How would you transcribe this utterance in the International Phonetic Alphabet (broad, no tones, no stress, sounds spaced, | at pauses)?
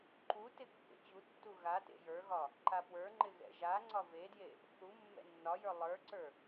ǃ u t ɪ kː ḛ t͡ɕ u tː u ɣ a t ḛ j ə˞ ɣ ɒ | ǃ a p w ə˞ ŋ͡ǃ ɪ ɣ ɛ̰ ʒ a ŋ͡ǀ ɒ v e d j e | θ u mː ɛ̰ nː ɒ j ə˞ lˠ ə˞ ǀ ə˞